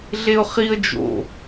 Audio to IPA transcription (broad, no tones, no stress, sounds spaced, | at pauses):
ɮ e ʊ̯ χ i ə̯ d͡ʒ o̰